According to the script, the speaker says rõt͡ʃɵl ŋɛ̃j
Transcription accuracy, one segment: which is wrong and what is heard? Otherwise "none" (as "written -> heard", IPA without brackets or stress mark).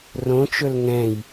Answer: none